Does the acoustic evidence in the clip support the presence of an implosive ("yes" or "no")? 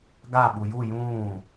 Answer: yes